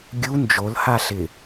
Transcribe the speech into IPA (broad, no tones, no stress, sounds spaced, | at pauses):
ɡʲ u n d͡ʒ o l h a ɬ ɪ